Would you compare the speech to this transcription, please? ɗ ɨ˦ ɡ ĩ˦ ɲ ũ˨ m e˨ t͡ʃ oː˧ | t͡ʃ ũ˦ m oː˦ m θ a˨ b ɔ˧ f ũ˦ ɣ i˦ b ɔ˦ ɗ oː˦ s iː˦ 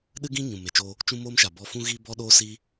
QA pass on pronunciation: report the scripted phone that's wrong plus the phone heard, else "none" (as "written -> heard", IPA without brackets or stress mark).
θ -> ʃ